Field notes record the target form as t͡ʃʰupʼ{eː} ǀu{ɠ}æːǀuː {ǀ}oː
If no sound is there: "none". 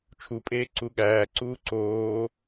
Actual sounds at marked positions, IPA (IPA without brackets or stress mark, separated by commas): eː, ɠ, ǀ